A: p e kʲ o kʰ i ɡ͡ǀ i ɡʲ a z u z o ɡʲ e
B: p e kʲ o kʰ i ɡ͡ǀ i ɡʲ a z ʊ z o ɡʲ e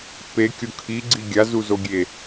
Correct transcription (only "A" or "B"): A